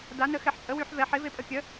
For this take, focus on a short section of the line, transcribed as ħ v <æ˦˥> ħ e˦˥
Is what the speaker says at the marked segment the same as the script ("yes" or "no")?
no